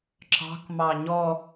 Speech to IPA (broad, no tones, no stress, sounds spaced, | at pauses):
ǁ ɑ̤ k m ɑ ɲ ɔ